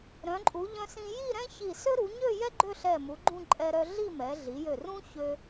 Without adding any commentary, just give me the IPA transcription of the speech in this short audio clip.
ɾ œ̃˩˧ ǃʼ u˩˧ ʎ œ̃˧ s ĩ˧ j i˥˧ ɾ ɛ̃˥ ç i˧˩ s ø˥ ɾ u˩˧ ɲ ø˥˧ j ɛ˥ ɡ͡ǃ ø˥˧ ɬ ɛ˧˩ m u˩˧ ɡ͡ǃ ũ˥˧ ǃʼ ɛ˧ ɾ œ˧ ɮ i˥˧ m ɛ˩˧ ɮ i˩˧ j ø˧˩ r ũ˥ ç ø˧

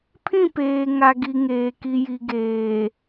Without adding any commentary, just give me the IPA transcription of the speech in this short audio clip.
pʰ ĩ˦˨ p eː˨ ŋ a˨ ɡ i˨ ŋ eː˨ k i˨ j i˨ ɡ eː˨

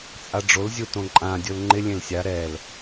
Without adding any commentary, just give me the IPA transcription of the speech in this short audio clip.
t͡sʼ a ɖ͡ʐ o l zʲ u t õ ǃʼ ã dʲ ʊ l ŋ͡ǃ ɪ lʲ ẽ l sʲ a ɾ ɛ l

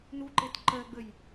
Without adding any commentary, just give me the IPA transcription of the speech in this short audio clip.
n u ǃ e t ǃ ɜ ɡ͡b ə j

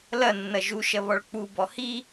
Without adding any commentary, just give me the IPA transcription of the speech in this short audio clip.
l ɐ nː ɐ ʒ u ʃ ɐ β ɔ ɭ k͡p u b ɔ h i

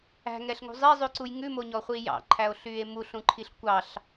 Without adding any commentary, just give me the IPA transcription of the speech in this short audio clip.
æ̤ ŋ ɛ ɬ ŋ ṳ zˤ i zˤ ʉ ǀ u j ŋ ʉ m o ɲ ɔ χʷ i j ɑ̰ ǃʰ æ o̯ ɬ yː e̯ m u ɬ ũ ǃʰ i ɬ kʷ ɑ ɬ

